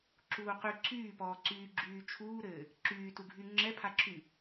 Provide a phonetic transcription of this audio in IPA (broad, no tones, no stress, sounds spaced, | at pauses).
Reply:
ǁ uː q y ǀʰ yː p ɔː ǀ yː ɡ͡ǁ yː t͡ʃʰ uː ɾ ɘː | ǁ yː t u ɡʱ y ŋ͡ǁ ɛ pʰ a ǁʰ y